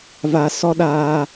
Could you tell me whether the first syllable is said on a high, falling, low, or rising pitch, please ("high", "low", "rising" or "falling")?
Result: low